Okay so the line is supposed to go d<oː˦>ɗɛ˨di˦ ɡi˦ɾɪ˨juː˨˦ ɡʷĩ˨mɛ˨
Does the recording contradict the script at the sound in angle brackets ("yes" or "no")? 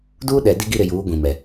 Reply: yes